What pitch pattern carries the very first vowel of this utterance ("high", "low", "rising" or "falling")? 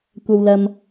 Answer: low